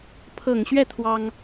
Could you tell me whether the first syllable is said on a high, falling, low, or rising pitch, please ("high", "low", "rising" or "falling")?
low